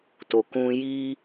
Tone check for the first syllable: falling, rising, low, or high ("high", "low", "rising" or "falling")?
low